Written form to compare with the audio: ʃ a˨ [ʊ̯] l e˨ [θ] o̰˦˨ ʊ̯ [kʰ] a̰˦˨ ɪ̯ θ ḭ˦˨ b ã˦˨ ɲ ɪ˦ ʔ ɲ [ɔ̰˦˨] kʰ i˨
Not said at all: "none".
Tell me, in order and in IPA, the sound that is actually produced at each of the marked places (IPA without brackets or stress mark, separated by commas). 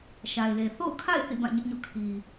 ɪ̯, θ, kʰ, o̰˦˨